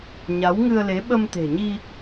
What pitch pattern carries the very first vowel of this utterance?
rising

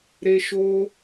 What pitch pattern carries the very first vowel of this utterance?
high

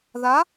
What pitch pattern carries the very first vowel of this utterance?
rising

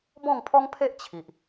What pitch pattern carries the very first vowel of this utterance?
falling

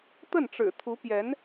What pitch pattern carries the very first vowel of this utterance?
falling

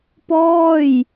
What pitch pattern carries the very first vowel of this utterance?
falling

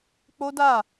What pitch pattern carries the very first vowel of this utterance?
high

